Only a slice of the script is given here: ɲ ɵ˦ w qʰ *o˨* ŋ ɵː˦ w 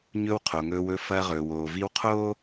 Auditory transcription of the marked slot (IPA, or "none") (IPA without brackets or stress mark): o˨